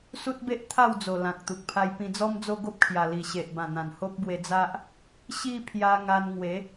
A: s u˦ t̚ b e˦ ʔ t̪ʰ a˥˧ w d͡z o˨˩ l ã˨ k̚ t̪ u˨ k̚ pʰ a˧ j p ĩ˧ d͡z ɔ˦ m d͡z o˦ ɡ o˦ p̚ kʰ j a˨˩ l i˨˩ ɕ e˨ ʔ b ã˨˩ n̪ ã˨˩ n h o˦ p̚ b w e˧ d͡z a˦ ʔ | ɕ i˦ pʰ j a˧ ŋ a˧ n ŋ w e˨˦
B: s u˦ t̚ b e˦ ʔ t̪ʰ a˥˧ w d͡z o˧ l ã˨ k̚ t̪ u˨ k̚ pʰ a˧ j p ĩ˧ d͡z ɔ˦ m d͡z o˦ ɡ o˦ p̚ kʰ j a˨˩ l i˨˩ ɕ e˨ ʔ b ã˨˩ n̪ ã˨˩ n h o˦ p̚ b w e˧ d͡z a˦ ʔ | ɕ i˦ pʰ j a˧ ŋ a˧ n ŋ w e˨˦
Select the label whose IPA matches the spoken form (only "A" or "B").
A